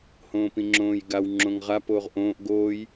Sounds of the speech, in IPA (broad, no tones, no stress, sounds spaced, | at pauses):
h õː p ĩ ŋ͡ǁ õː j ɡ a w ŋ͡ǁ õ ŋ ʁ a p oː ʁ ʔ õː ʔ ɡ oː j